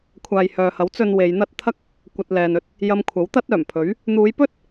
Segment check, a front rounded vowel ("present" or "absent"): present